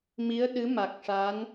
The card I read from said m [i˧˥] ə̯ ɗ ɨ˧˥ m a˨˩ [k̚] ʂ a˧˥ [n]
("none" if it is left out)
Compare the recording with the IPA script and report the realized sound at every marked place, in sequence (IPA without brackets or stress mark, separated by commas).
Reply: i˧˥, k̚, n